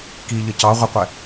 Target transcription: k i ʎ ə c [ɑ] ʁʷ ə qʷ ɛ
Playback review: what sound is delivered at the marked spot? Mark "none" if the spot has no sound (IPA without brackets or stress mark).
ɑ